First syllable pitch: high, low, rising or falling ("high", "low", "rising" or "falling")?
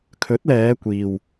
rising